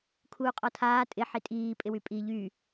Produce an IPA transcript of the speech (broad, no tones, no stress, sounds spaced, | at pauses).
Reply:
kʰ uː qʼ ɔ tʰ aː tʼ ɪ ħ i tʼ iː pʼ ɪ w y pʼ i ʎ y